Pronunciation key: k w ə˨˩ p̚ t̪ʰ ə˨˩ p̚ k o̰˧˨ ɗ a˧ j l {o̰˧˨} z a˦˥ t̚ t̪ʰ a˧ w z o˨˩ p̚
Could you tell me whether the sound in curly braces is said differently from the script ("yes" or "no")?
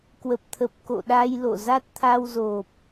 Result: no